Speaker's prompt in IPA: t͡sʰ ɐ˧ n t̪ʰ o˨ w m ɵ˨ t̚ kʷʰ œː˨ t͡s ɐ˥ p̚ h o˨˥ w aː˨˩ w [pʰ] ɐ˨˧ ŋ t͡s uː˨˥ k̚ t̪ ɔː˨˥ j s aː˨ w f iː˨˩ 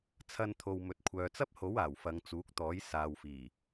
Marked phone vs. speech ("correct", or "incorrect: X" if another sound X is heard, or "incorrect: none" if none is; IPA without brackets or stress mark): incorrect: f